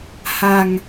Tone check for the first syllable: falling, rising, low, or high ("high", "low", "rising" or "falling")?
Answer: low